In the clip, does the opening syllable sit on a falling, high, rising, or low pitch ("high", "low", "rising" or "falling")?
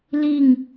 falling